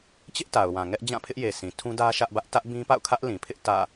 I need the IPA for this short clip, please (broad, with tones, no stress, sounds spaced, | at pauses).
t͡ɕ ɪ˦ ʔ t a˨ ʊ̯ w ã˨ ŋ ɛ˦ ʔ d͡ʑ ã˦˨ pʰ ɪ˦ ʔ j e˨ sʰ ĩ˨ tʰ ũ˦ d ä˦ ʃ ä˦ ʔ b ä˦ ʔ t ä˦ ʔ b ĩ˦ p a̰˦˨ ʊ̯ kʰ ä˦ ʔ l ĩ˨ pʰ ɪ˦ ʔ t ä̰˦˨